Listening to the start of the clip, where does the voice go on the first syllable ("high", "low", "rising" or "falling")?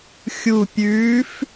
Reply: low